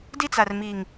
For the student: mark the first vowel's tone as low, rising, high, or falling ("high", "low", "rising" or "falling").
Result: high